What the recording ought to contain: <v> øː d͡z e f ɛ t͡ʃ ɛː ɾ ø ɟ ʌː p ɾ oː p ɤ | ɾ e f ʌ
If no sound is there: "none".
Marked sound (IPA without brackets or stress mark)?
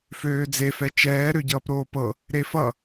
f